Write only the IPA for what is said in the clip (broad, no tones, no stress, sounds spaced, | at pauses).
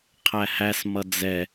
qʰ æ h æ s m ʌ d͡z ɛ